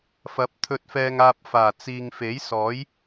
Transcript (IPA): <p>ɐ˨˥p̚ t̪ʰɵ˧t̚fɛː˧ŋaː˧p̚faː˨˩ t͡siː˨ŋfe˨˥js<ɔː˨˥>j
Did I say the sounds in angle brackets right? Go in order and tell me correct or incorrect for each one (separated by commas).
incorrect, correct